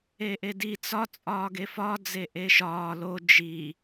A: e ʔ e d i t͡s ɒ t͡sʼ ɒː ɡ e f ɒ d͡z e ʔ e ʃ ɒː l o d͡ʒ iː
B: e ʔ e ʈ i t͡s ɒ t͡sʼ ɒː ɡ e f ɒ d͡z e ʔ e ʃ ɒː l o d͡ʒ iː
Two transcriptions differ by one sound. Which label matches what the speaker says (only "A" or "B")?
A